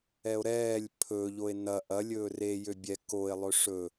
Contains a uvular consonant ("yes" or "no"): no